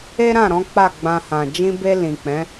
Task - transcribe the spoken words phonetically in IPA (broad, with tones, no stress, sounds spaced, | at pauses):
e˦ ɾ ã˦˨ ɾ ɔ̃˨˦ k͡p a˦˨ ɡ͡b ã˧ h ã˨ d͡ʒ ĩ˧ b e˧ l ĩ˨ k͡p ɛ̃˨˦